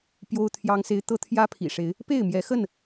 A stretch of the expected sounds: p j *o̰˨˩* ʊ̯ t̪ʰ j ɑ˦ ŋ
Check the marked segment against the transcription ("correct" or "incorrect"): incorrect